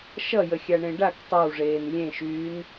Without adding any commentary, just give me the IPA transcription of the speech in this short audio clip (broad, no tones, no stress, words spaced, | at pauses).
ʃʌjəxʲaɳẽ ɖak tˤʌwʐeːn lʲẽʃyːn